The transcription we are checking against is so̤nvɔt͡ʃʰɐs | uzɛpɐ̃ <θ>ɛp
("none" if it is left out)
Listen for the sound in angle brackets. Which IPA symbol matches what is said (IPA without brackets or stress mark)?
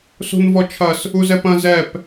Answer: z